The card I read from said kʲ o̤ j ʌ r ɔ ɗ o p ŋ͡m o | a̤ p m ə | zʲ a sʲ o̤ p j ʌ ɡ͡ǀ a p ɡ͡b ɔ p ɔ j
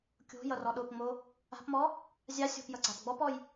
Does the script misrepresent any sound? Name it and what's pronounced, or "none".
ə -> ɔ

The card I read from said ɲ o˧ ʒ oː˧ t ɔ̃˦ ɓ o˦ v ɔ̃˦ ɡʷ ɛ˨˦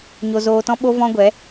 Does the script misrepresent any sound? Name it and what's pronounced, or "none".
ʒ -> z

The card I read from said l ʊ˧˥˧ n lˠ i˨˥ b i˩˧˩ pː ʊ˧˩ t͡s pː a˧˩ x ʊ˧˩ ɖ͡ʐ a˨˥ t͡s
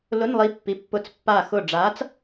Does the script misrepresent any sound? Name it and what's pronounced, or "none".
b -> pː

